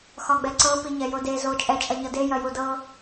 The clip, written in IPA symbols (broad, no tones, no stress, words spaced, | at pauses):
xɒɡ͡bɛǀɤ piɲɛjode zo t͡ʃʼɛ t͡ʃʼɐɲɤde jɐjudɤ